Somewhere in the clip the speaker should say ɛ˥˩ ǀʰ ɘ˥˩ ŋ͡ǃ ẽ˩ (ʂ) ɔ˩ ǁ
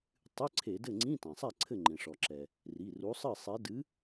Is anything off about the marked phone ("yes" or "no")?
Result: no